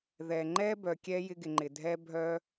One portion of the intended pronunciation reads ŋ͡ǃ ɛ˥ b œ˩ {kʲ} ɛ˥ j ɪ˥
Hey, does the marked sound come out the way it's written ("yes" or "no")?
yes